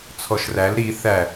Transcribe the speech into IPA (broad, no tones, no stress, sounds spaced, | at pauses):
t͡sʰ ɔ ʃ r æ l ɾ i θ æ